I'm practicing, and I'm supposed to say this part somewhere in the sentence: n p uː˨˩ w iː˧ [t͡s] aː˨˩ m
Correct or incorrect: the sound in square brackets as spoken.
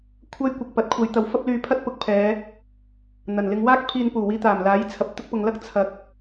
incorrect: t̪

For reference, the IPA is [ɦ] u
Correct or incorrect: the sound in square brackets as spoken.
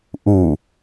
incorrect: ʔ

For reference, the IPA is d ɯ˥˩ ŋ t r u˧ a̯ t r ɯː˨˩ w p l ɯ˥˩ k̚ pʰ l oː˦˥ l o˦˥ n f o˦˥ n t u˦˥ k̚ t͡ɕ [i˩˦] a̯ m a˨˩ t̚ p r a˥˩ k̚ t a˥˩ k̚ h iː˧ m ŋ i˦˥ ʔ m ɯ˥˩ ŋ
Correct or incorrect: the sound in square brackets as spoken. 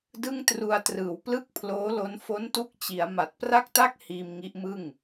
correct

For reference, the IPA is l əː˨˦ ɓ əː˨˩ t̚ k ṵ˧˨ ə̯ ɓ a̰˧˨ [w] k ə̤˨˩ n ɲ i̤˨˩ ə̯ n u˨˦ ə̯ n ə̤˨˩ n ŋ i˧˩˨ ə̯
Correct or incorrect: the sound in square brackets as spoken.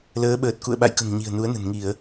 incorrect: j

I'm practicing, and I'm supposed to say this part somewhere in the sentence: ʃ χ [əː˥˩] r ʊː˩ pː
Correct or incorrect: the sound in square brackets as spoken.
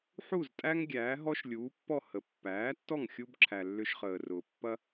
incorrect: əː˩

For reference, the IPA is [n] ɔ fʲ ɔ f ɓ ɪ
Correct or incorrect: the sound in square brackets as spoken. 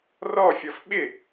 incorrect: r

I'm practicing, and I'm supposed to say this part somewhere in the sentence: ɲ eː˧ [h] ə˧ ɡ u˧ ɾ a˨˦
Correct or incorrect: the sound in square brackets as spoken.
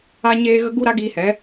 incorrect: ɣ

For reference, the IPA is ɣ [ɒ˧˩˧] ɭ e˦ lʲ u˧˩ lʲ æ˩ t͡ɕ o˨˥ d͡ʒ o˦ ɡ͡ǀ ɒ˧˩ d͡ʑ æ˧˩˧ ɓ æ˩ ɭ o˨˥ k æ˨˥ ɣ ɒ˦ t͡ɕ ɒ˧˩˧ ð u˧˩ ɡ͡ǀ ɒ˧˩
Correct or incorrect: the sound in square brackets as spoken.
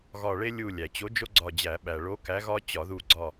incorrect: ɒ˧˩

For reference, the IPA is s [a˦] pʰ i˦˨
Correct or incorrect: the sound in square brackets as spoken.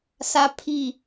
correct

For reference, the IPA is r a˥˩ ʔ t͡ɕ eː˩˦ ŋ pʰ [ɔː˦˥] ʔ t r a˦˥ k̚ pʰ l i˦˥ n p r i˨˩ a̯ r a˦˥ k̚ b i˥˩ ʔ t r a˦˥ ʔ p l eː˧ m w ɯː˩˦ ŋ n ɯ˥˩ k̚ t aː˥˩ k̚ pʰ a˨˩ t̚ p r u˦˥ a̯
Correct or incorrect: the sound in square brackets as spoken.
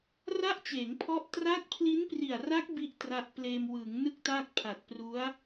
incorrect: ɔ˦˥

